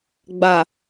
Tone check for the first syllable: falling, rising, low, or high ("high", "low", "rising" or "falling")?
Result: low